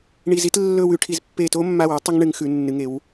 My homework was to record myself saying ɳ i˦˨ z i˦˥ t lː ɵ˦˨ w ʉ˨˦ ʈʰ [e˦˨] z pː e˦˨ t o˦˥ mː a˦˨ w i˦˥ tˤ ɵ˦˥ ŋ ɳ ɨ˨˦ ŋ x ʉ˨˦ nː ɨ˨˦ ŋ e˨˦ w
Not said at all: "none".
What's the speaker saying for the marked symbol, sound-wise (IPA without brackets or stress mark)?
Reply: i˦˨